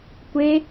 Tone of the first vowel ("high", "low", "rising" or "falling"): high